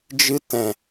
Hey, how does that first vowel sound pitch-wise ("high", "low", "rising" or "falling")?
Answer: high